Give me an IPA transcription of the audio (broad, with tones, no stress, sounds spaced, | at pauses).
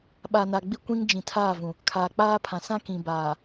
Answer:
ɓ a˨ n a˨ ɡ͡b i˦˨ kʷ ĩ˦ ŋ d͡ʒ ĩ˨ tʰ aː˦˨ v ũ˨ | kʰ aː˨ k͡p aː˦ pʰ ã˨ s ã˦ k ĩ˨ b aː˨